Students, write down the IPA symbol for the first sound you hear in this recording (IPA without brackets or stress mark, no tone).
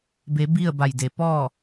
b